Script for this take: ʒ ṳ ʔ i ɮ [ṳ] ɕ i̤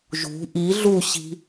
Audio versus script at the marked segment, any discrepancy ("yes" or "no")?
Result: yes